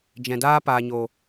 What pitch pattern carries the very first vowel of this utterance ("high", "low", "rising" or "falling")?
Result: low